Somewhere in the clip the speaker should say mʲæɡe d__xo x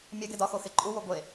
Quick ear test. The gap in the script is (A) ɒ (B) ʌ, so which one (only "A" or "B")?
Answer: A